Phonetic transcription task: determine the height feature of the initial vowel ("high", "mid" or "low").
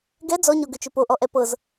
mid